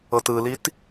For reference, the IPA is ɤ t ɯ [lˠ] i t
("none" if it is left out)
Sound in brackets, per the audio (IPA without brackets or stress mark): l